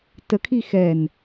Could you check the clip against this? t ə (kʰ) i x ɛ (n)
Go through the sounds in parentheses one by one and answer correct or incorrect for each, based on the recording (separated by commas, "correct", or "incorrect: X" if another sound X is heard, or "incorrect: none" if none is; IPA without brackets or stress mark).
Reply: correct, correct